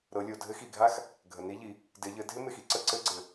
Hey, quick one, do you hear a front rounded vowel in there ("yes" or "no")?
no